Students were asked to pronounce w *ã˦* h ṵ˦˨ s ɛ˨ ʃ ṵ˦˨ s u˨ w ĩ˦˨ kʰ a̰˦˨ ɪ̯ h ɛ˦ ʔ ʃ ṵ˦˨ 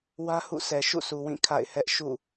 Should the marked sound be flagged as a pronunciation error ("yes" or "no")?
yes